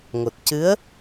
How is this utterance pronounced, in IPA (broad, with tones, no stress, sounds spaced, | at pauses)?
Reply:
ŋ o˨˩ t̚ c ɨ˧˥ ə̯